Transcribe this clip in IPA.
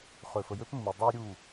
χ ø˨ f ə˨ j ø˦ p mː u˨ dˤ u˦ j ɾʲ u˦˨

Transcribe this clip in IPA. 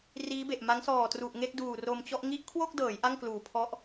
r iː˦˥ b e˨˩ ʔ m a˦˥ ŋ s ɔː˨˩ t r u˨˩ ʔ ŋ e˥˩ k̚ d uː˨˩ r o˧ m t͡ɕ ɔ˥˩ ʔ ŋ i˦˥ ʔ kʰ w o˥˩ k̚ d ɤː˩˦ j ʔ a˥˩ ŋ k l uː˨˩ pʰ ɔ˦˥ ʔ

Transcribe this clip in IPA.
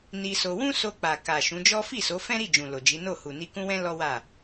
n i˧ s o˧ w ũ˦ s o˧ k͡p a˨ k a˨ ʃ ũ˨˦ d͡ʒ ɔ˦ f i˦˨ s o˨˦ f ɛ̃˦ ɾ i˦˨ d͡ʒ ũ˨ l o˨ d͡ʒ i˨˦ n o˦˨ h u˨ n i˧ k ũ˦ w ɛ̃˦ l ɔ˦ w a˦˨

